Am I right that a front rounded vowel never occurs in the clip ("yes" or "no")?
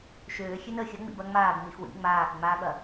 no